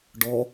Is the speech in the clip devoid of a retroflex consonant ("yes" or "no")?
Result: no